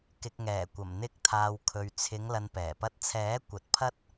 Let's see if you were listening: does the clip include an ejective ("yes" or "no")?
no